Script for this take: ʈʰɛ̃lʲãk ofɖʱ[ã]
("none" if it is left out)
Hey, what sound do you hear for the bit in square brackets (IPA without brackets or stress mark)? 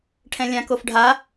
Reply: a